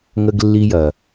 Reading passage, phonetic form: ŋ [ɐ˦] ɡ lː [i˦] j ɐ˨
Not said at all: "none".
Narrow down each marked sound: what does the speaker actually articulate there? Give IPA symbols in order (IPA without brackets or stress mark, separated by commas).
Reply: ə˦, i˦